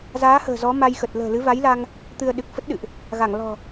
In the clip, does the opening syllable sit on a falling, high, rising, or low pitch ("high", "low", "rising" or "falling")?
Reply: rising